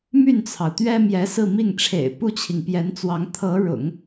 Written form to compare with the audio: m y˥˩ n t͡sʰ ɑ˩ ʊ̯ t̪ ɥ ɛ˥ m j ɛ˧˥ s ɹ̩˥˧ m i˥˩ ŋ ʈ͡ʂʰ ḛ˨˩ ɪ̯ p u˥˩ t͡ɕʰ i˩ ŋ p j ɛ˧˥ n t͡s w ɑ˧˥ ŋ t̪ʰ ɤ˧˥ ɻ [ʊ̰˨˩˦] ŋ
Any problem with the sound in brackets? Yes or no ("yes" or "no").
no